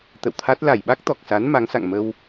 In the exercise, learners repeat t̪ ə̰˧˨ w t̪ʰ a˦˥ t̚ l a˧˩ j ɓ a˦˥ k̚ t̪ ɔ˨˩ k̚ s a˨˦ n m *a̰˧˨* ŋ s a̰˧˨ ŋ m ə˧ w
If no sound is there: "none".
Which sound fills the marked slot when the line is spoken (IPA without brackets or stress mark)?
a˨˦